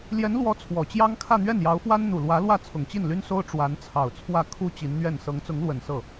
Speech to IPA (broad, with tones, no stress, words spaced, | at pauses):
ljɛ˧˥nlwɔ˧˥ t͡sʰwɔ˨˩t͡ɕjɑ˥ŋ kʰä˥˧n̪ɥɛ˥˩njɑ˧˥ʊ̯fwa˥n n̪u˨˩lwä˧˥lwä˥˩ t͡sʰʊ˨˩ŋt͡ɕi˥˩nly˥nso˥ʊ̯ ʈ͡ʂwa˧˥nt͡sʰɑ˨˩ʊ̯t͡sʰwä˥˩ kʰu˥ t͡ɕi˧˥nn̪ɥɛ˥˩n sɤ˧˥ŋt͡sʊ˧˥ŋlwə˨˩n sɤ˥˩